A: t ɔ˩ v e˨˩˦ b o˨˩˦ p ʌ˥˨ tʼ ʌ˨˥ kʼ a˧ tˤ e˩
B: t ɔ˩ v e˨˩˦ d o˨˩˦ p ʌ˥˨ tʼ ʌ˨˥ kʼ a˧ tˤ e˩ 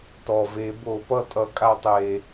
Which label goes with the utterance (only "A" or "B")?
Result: A